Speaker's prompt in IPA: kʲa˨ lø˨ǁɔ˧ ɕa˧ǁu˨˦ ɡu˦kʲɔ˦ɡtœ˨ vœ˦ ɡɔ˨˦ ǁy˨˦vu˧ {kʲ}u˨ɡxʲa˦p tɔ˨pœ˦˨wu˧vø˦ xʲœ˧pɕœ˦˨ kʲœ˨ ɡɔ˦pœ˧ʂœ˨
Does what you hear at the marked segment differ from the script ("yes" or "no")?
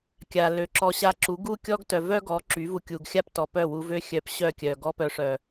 no